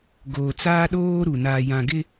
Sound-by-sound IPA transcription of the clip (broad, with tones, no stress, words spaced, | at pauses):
ɡoː˨t͡saː˦ɗoː˦ɾu˨ naː˨jã˨ɡɪ˦